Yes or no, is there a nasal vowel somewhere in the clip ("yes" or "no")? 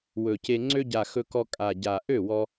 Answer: no